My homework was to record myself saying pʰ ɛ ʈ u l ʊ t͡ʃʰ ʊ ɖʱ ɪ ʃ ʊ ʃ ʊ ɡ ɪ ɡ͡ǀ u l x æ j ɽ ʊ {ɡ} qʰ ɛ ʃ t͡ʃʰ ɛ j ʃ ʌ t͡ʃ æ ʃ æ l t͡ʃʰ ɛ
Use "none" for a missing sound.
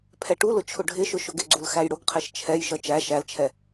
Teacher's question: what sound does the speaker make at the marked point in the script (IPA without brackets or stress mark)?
ɡ